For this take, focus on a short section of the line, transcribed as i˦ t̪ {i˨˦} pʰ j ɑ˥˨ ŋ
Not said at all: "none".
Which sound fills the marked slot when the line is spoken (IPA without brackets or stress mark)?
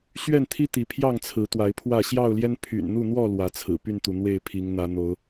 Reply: i˨˦